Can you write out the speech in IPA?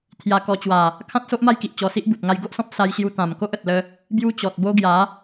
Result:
t̪ʰja˧ kɔ˧t͡ɕwa˨˩ | kʰã˦t̚ so˦ʔma˦jki˨ʔ t͡ɕɔ˧si˦ʔbu˨t̚ ŋa˧jɡo˦ʔsɔ̃˦p̚ sa˧jɕju˧ t̪ã˨˩mko˦ʔə˨t̚lə˧ | bju˦t͡ɕɔ˨t̚bo˦ ɡja˨˦

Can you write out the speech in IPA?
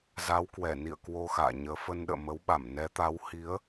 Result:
za˨˦wkwɛ˧˩nḭ˧˨ə̯ kwo˧ xa̰ː˧˨ɲəː˨˦ fə˧nɗə̰ː˧˨ mə˨˦wɓa˧˩mnɛ˨˦t̪a˨˦w hi˨˦ə̯

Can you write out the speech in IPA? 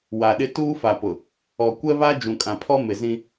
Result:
wa˨ɗɪ˦ tuː˦fa˨pʊ˨ | ɔ˨kʷɛ˦βa˦ d͡ʒũ˨kʼã˨pʰɔ˦ mɪ˨zĩ˦

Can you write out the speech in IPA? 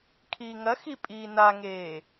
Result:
kʰiːŋɐxi pʼiːnaŋeː

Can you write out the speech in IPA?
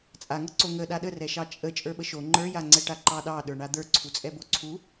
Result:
t͡sʼaŋɤǀo ŋə ɗaɗərɛʃɑ t͡ʃʼə t͡ʃʼə˞ɓəʃo ŋ͡ǃə˞jaŋ͡ǀɛʈa ǃɑɗɑɗə˞ɳa d̪ə˞ ǀʰut͡sʼɛboǀʰu

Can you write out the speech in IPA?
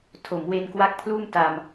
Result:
tʰo˩˦mwe˧nkwa˦˥k̚pʰluː˥˩m ta˧m

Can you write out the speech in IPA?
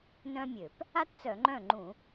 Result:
nœ̃˥mʲø˧˩˧p | a˥tt͡sœ˧˩˧ŋ͡ǃœ̃˥˩ŋ͡ǃũ˧˩˧

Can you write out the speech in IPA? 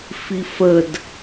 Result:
fifəd

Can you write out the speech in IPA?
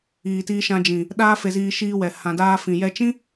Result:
iː˨ tiː˧ʃã˧d͡ʒĩ˨ | ɗaː˦fe˧ziː˧ ʃiː˧wɛ˨ hã˨daː˧ fĩ˨jɛ˧t͡ʃĩ˦

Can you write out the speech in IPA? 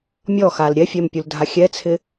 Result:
mʲɔxal ɾʲɛfʲɛmpʲuldʱa xʲɛt͡sʰɪ

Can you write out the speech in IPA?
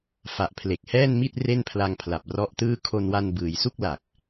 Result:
fa˨˩ʔpʰle˨˩k̚hɛː˥˩nmi˥˩t̚ re˥˩npʰla˧ŋ pʰla˨˩p̚rɔ˦˥ʔtɯː˥˩ kʰo˧nwa˧n bɯː˩˦j su˥˩k̚la˨˩k̚

